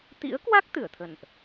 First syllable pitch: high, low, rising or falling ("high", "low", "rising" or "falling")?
rising